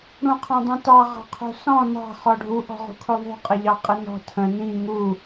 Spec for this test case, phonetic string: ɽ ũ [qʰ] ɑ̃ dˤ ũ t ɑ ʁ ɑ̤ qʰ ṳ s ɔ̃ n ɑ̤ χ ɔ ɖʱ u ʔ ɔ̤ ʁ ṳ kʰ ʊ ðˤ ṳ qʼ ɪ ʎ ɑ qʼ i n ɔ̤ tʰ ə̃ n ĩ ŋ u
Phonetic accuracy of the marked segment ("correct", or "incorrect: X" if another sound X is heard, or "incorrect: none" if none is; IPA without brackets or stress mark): correct